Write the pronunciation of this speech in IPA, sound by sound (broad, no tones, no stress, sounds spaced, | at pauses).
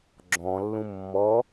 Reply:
ɡ͡ǁ ɔ̃ lː ũ mː ɔ